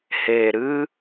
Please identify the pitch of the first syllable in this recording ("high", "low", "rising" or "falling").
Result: low